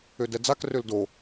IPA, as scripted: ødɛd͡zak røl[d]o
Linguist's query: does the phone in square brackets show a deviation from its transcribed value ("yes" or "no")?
no